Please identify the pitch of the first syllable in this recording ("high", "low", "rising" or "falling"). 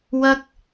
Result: high